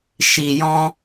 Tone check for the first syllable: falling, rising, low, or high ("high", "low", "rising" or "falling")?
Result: low